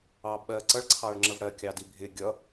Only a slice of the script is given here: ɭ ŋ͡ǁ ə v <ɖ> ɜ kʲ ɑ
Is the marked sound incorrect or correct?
incorrect: ɽ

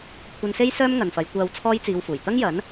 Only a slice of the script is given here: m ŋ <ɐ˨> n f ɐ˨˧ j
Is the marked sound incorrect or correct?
correct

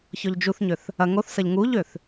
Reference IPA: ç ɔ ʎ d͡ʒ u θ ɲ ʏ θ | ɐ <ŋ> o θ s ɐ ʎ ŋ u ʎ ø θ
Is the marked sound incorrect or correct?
correct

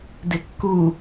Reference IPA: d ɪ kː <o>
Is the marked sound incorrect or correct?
incorrect: u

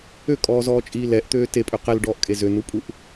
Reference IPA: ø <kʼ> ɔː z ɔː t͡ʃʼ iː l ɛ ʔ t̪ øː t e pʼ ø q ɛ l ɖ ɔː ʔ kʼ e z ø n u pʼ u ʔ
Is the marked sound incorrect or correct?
correct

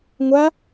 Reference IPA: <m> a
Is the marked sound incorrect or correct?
incorrect: ŋʷ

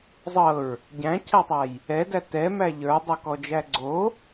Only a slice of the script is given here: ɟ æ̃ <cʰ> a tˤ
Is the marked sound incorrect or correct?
correct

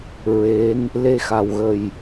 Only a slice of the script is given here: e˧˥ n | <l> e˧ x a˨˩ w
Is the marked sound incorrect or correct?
correct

